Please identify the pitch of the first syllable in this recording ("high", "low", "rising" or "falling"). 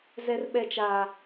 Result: high